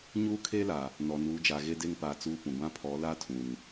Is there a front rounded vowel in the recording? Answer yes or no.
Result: no